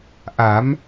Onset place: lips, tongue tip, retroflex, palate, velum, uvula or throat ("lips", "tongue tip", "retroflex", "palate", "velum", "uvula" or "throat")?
throat